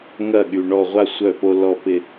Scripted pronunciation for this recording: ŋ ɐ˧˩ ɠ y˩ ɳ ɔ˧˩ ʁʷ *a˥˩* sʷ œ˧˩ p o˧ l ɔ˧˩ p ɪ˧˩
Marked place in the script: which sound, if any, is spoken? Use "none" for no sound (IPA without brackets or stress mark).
a˥˩